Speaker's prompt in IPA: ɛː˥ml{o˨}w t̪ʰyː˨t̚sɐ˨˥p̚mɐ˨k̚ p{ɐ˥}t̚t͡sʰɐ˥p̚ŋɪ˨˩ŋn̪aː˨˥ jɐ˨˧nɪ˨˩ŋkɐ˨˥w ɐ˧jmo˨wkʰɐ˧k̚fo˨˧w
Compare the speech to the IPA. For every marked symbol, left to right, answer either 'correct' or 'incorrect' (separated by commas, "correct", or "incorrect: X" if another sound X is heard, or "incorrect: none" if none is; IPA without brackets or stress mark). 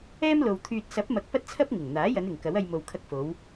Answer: correct, correct